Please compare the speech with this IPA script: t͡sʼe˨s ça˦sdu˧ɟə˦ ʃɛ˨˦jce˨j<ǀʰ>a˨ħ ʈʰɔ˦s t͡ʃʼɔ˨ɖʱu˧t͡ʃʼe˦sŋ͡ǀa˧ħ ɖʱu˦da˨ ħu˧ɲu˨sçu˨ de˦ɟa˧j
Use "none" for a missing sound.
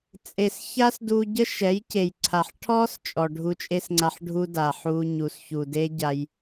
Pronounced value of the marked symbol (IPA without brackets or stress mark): ǀʰ